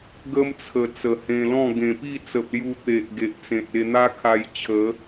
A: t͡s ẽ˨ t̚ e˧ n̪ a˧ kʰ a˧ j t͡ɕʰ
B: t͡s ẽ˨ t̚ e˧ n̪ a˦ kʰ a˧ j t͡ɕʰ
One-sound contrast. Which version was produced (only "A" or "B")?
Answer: B